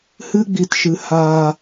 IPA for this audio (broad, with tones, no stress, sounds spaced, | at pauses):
h ɨ˦ ɡ͡b i˧ t ʃ ɨ˧ h aː˧